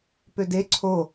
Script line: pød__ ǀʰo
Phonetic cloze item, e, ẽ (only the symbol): e